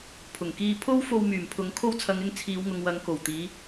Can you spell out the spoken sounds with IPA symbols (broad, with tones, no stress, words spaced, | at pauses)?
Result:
pʰʊ˨˩ŋkiː˧ pʰo˥w fo˧wmyː˨˩mpʰʊ˨˧ŋ kʰo˧wt͡sʰɐ˨ŋɪ˧ŋ t͡sʰiː˨˧wŋʊ˨ŋwɐ˨˧ŋ ko˨˩w t̪iː˨˧